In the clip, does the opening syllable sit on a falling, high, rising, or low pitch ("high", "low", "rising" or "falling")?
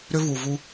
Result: high